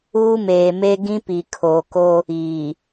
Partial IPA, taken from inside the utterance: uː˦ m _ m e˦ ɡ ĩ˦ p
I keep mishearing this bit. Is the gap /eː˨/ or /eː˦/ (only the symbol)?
eː˨